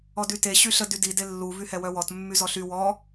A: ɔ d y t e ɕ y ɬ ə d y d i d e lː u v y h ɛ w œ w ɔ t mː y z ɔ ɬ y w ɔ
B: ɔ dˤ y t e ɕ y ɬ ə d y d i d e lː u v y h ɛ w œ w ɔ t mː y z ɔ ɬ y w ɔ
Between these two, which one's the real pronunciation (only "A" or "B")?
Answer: A